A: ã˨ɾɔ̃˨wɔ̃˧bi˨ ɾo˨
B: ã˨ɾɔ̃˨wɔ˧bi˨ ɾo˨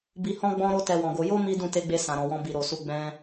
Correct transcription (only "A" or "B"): A